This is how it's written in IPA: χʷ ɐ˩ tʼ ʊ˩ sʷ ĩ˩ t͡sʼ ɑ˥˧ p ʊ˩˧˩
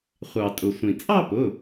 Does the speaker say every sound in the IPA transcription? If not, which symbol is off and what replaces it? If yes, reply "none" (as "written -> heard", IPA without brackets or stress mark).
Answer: ɐ˩ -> ɑ˩